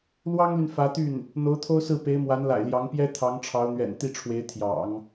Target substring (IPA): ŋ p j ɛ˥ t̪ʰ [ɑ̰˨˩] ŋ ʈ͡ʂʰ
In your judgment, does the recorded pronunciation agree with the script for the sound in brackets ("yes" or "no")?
no